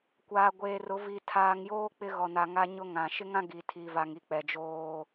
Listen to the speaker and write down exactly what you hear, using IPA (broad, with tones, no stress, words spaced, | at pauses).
kʷaː˨ɡʷeː˨rʊ˨˦ vi˨ tʰaː˨ŋjoː˦ k͡pɪ˦ɣɔ˨na˨ ŋa˦ɲʊ˦ ŋã˨ ʃɪ˦ŋã˦ ɡi˨tʰi˨va˨ŋi˨ k͡pɛ˨d͡ʒoː˦